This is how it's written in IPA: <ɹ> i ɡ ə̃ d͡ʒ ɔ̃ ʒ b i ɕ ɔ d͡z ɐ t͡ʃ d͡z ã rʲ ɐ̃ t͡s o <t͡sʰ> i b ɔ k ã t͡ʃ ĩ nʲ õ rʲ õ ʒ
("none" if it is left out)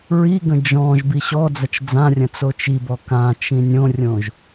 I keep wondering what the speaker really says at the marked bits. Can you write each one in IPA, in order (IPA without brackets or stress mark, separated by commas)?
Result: ɹ, t͡ʃ